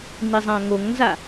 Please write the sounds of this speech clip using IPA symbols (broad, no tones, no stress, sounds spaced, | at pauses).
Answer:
n i zˤ ã ŋ o ŋ n z a